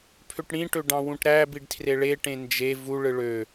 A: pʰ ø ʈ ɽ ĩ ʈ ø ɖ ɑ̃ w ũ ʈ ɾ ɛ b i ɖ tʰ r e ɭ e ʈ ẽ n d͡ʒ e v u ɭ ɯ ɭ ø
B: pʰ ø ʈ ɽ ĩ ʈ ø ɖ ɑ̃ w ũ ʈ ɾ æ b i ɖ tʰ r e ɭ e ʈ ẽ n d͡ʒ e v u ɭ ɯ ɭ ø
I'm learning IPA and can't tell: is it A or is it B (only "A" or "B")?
B